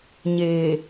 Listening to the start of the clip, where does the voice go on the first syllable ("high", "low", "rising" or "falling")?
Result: low